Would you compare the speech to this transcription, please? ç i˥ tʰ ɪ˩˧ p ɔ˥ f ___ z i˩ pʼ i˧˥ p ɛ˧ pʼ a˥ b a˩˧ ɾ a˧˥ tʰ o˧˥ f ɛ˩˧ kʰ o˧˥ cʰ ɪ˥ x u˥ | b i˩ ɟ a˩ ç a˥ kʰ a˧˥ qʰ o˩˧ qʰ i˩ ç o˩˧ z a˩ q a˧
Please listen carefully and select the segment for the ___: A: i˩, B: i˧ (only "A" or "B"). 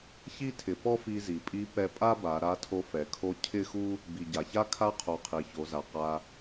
B